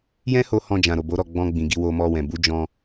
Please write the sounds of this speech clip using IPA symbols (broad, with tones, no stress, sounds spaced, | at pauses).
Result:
j ɛ̃˦ h o˧ h ɔ̃˧ d͡ʒ ã˨ ɾ o˨ b o˨˦ ɾ ɔ˦˨ ɡ͡b ɔ̃˧ ɡ͡b ĩ˨ ɡ i˧ w o˧ m ɔ˧ w ɛ̃˨ b u˨˦ d͡ʒ ɔ̃˧